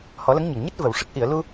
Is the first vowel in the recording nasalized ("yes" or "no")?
no